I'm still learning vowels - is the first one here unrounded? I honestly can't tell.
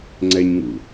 yes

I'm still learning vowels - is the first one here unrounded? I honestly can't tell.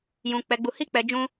no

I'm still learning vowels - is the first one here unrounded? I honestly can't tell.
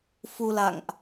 no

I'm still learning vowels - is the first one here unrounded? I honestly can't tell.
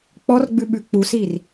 no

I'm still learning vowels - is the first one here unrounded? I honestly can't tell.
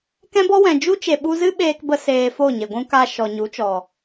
yes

